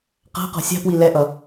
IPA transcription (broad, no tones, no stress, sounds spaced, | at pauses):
q a̤ q ɔ̤ sʲ a̤ p w i l ɛ ʔ ʌ